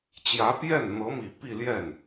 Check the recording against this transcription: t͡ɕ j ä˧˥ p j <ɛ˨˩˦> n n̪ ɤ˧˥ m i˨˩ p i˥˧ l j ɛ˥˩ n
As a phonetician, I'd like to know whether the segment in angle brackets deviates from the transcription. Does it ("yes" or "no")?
yes